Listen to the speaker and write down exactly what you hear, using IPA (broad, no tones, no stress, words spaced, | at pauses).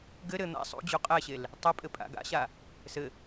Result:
ɡɘ ɾɘ n̪a̰ sˤṵd͡ʑu qʼɛɕel | tˤɘpʼɘ pʼa̰ɡa̰ɕa | sɘ